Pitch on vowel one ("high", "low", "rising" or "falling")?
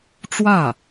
falling